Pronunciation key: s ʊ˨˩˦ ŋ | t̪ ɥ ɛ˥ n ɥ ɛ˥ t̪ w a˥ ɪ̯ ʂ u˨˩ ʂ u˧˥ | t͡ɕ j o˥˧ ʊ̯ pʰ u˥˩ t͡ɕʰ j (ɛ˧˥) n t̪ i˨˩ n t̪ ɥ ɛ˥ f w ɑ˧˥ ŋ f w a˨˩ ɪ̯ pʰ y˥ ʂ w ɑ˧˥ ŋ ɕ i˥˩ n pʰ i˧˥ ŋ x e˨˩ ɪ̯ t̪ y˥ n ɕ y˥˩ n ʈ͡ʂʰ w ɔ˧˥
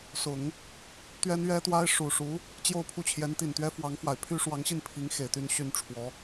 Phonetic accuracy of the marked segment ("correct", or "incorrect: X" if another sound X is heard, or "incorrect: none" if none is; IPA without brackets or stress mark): correct